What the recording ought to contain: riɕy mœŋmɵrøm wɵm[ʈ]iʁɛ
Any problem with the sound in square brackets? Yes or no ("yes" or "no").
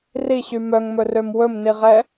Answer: yes